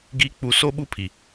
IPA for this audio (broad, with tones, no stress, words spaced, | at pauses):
ɡi˨˦k͡pu˨ so˦ɓu˦pʰi˨